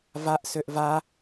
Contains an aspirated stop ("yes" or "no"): no